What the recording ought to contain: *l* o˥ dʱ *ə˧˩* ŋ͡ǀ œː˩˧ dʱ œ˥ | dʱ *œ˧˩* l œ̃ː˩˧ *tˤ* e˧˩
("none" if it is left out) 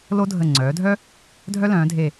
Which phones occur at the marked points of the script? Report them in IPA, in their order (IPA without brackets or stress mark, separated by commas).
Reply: l, ə˧˩, œ˥, dʱ